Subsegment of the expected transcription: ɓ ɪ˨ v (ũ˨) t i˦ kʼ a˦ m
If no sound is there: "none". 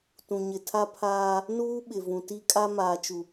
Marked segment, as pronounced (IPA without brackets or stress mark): ũ˨